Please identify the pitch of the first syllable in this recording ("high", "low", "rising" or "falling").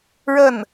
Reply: falling